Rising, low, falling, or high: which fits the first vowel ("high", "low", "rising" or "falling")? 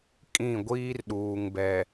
falling